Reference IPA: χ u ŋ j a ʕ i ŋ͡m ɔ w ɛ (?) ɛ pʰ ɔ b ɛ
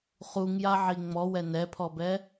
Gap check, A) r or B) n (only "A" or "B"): B